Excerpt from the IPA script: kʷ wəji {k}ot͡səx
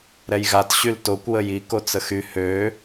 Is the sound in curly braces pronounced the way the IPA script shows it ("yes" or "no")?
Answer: yes